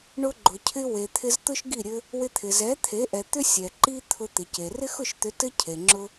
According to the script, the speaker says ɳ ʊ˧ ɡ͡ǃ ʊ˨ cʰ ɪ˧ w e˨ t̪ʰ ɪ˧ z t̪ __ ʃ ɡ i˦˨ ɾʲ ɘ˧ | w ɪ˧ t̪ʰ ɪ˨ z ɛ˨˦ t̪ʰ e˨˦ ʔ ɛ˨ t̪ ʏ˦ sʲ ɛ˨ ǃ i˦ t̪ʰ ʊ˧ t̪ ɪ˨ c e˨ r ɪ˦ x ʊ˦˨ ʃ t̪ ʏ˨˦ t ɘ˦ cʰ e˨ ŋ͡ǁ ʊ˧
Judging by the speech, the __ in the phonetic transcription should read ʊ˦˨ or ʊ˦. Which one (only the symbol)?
ʊ˦